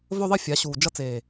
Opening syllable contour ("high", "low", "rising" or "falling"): high